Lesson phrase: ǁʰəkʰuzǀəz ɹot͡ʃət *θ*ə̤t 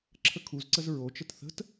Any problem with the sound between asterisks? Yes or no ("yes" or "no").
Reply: no